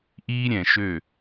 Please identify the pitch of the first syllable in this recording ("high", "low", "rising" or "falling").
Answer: high